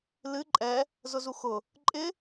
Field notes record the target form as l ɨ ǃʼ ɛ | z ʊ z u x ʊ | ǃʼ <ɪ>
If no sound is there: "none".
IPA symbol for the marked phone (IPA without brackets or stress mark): ɪ